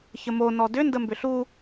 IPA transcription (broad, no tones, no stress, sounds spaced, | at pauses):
ç ə m o n ɔ d ʏ n d ə m b ʏ ɬ u